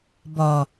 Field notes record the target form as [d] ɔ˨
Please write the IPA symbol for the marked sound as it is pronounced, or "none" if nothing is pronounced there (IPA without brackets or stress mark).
b